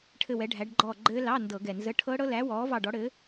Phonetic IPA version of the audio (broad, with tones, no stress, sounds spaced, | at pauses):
ʈʰ ɘ˦˨ w ɛ˨˥ ɖʱ æ˨˥ ɖ ɡ͡ǃ ɔː˦˨ ɡ͡ǃ ɘː˦˥ l ɑ˧˥˧ n d ɤ˧˩˧ ɡ ɛ˨˩ n z ə˧˥˧ ʈʰ ɤ˦˥ ɽ ɤ˦˥ l æ˨˥ w ɔː˨˥ v ɑ˦˨ ɖ ɔ˨˥ ɽ ɘː˨˥